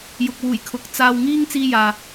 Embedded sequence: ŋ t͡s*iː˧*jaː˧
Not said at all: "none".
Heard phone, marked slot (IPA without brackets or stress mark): iː˥